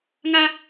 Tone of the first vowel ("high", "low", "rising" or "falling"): high